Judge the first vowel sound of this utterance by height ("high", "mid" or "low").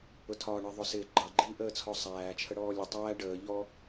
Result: high